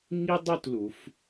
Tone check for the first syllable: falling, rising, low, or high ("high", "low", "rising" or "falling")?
high